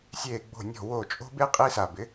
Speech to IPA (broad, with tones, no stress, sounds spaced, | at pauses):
sʲ eː˧˩ ɡ͡b o̤˧˩ nʲ ɔ̤˧˩ w o˧˩ t͡ʃʼ o̤˦ b e˦ qʼ i˦ s a˧˩ b ɪ˩˥